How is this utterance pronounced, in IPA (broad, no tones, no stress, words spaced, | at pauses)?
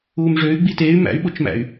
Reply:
uːmʐøy̯ ɡ͡biteːy̯ mæ̰y̯ɓot͡ʃmæ̰y̯